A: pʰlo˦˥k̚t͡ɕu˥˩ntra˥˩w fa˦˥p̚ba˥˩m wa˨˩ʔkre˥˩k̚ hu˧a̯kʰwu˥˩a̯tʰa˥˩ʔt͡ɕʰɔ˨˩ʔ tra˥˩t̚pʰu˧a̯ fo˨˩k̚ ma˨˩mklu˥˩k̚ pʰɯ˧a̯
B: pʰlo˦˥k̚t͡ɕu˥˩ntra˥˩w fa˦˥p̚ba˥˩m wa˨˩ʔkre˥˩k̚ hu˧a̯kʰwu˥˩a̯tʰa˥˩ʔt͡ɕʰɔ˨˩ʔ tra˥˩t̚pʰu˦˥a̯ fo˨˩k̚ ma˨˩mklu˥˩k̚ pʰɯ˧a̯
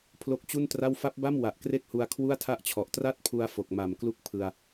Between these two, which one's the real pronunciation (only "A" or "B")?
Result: A